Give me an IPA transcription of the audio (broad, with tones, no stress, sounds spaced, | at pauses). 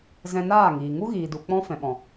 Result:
z ɛ̃˧ n aː˦˨ ŋ iː˨ ŋ u˦ ɣ iː˨ d u˨ k͡p ɔ̃˦ f ɛ̃˨ ɓ ɔ̃˨